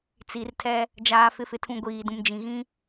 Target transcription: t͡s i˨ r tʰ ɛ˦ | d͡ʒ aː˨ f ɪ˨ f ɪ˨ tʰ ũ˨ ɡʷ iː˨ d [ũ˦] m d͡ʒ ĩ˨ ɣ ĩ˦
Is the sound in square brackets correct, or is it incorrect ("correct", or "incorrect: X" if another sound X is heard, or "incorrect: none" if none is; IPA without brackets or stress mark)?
incorrect: ũ˨